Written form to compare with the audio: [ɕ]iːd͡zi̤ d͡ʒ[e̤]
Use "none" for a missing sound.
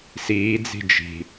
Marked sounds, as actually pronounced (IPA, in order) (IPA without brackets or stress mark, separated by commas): s, i̤